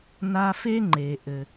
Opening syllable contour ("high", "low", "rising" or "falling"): high